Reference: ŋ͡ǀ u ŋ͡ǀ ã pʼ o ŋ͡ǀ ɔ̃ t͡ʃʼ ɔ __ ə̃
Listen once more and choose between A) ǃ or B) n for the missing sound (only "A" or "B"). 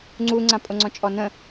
B